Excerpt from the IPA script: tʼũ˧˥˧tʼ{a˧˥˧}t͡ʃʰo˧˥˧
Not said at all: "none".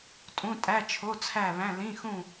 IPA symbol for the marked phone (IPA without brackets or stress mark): æ˧˥˧